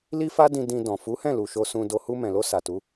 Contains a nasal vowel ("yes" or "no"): yes